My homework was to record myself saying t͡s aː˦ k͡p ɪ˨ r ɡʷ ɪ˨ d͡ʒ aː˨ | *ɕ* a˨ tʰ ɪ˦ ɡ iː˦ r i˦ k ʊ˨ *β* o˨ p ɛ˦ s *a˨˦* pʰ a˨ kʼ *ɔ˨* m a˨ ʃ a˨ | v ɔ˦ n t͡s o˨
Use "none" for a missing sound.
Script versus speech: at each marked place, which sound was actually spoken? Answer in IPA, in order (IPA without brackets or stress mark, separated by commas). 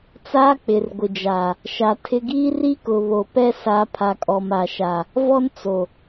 ʃ, β, a˨˦, ɔ˨